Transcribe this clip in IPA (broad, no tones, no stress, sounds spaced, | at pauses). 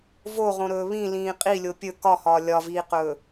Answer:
v o ʁ õ ɾ ɵː β ĩ l ĩː qʼ i lʲ o pʲ ɵ k ɒ h ɒː lʲ ɒ v iː q ɵː